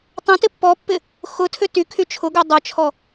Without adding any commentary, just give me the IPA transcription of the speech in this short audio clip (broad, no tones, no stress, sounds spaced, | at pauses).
tˤ ẽ t ɪ pː ɔ pː ɪ | x ʊ tʰ ʏ t y kʰ y t͡ʃʰ ʊ ɡ ø dˤ œ t͡ʃʰ ɔ